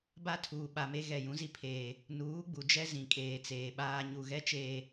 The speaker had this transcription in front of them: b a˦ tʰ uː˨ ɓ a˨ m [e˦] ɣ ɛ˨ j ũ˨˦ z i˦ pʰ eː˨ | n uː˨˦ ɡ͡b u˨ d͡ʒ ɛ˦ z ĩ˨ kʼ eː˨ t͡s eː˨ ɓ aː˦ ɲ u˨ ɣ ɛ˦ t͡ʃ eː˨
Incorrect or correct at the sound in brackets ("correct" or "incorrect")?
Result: correct